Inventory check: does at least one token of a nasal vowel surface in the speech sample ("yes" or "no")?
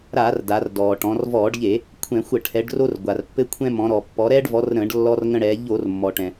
yes